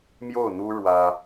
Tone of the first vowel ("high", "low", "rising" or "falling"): falling